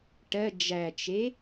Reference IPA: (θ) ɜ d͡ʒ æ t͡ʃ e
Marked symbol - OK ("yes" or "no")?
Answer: no